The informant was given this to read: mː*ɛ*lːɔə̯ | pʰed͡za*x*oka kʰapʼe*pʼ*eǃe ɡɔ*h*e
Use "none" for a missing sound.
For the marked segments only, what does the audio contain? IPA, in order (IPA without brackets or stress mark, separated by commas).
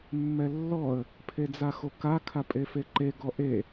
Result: ɛ, x, f, ʔ